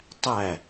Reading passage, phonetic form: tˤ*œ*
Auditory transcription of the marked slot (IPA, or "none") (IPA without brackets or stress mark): æ